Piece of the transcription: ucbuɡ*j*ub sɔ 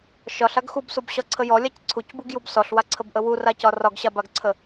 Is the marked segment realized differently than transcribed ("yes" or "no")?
no